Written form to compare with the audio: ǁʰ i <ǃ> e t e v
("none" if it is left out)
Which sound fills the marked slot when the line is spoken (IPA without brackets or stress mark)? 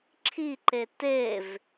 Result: ǃ